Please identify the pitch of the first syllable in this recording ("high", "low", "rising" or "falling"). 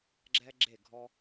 high